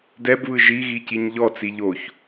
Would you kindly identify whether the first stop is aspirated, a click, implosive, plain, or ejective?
plain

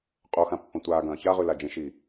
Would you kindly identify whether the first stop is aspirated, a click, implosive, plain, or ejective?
ejective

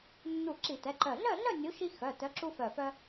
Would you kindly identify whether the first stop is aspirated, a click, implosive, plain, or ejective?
click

